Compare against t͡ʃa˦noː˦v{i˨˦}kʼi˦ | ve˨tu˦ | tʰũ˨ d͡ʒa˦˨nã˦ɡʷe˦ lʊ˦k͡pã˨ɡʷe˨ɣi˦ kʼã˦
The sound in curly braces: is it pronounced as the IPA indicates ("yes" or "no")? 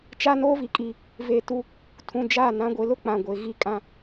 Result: no